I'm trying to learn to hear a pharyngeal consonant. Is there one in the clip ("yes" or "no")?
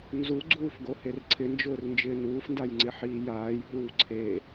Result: yes